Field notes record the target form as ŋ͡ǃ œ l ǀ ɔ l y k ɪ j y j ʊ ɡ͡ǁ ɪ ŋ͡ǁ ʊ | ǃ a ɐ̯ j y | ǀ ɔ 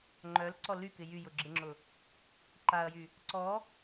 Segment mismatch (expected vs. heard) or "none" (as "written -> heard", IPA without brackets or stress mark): none